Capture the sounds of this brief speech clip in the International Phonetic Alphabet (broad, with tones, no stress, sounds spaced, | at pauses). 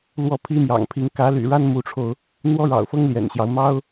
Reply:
l w ɔ˥˩ pʰ i˥ m j ɑ̰˨˩ ŋ pʰ i˧˥ ŋ k ä˧˥ l y̰˨˩ ɻ a˥ n m u˧˥ ʈ͡ʂʰ o˧ ʊ̯ | n̪ w ɔ˥ ɻ ɑ̰˨˩ ʊ̯ f ɤ˥ ŋ l j ɛ̰˨˩ n ɕ j ɑ˦ ʊ̯ m ɑ˥ ʊ̯